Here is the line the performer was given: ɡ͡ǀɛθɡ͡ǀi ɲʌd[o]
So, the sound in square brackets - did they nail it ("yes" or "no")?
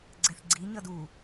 no